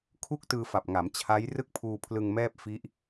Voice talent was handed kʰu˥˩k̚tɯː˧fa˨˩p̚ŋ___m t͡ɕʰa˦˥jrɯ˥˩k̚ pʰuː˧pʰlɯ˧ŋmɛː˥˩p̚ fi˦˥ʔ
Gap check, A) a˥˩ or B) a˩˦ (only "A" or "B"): B